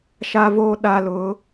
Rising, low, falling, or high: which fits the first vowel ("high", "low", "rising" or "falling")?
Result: high